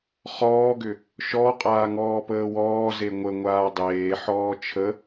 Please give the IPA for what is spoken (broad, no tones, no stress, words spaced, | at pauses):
χɔːɡʏ | ʃɔqʼaː ŋɔːpəːwɔːze ŋʷəŋʷaː dˤeːħɔː t͡ʃʰə